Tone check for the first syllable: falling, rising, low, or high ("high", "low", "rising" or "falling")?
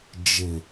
low